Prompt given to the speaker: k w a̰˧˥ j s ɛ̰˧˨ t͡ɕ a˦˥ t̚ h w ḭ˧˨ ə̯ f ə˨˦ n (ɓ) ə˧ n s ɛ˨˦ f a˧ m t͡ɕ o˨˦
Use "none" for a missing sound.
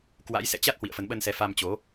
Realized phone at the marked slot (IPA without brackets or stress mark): ɓ